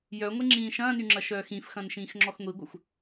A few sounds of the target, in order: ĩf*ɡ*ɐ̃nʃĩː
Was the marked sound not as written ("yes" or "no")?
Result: yes